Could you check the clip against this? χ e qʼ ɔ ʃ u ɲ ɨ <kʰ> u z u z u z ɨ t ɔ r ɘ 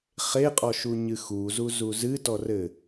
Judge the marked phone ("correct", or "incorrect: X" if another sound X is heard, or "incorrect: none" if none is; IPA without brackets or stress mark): incorrect: x